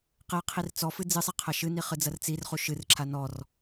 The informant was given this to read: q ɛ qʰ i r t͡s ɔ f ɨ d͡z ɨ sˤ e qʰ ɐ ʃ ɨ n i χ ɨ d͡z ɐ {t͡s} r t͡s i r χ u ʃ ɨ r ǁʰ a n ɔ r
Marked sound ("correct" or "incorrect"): incorrect